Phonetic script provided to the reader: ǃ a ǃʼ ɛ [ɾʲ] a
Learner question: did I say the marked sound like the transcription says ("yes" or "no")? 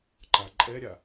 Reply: yes